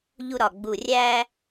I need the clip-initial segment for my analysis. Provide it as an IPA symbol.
ʎ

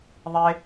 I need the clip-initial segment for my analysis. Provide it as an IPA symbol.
ðˤ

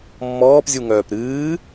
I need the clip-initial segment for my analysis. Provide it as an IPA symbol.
mː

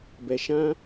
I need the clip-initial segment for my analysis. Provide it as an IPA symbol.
b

